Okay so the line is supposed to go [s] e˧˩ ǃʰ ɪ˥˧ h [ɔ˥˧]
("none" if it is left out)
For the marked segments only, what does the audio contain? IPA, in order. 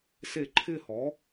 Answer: s, ɔ˩˥

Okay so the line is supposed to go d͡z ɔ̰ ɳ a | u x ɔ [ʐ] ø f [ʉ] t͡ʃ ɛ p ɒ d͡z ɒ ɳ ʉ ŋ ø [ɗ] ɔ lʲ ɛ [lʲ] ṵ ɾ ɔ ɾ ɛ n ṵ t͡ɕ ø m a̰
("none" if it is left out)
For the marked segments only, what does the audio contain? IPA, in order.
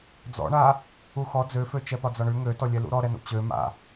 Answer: d͡z, ø, t, l

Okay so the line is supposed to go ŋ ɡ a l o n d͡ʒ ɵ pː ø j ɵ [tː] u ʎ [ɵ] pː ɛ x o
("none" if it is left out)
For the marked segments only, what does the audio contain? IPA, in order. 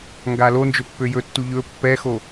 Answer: tː, ɵ

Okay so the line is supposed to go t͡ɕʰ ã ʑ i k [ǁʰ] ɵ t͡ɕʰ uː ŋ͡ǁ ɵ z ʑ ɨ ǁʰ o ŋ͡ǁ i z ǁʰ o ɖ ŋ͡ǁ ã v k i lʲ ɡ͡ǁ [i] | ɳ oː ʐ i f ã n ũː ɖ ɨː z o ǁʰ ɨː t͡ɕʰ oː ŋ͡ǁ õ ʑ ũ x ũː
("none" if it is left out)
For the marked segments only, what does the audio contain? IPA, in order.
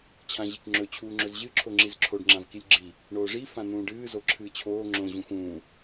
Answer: ŋ͡ǁ, i

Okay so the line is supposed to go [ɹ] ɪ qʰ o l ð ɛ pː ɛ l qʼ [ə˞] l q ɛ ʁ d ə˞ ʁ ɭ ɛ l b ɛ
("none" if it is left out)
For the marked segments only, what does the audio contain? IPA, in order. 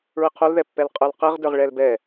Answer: ɹ, ə˞

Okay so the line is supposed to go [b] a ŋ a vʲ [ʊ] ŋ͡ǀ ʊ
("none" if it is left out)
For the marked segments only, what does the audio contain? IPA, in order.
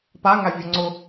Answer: p, ʊ

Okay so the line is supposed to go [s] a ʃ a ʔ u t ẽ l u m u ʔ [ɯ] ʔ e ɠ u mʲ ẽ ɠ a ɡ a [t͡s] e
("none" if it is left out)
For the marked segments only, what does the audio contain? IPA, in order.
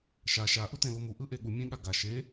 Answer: ʃ, ɯ, ʃ

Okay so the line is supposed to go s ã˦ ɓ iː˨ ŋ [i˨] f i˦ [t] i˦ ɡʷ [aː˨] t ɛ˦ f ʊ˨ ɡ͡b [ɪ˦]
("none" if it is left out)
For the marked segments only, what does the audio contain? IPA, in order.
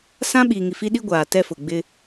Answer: i˨, ɗ, aː˨, ɪ˦

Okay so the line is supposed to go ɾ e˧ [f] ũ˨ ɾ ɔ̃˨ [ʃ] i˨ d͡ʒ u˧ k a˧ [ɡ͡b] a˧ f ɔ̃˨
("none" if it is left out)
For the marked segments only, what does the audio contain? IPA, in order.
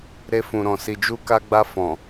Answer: f, s, ɡ͡b

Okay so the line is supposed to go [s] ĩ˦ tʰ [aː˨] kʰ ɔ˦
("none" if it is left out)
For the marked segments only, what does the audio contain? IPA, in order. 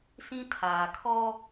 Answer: s, aː˨

